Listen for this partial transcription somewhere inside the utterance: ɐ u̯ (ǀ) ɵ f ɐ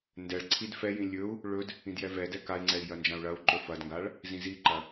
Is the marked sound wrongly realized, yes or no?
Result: yes